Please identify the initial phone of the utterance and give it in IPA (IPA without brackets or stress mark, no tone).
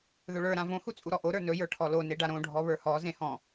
ð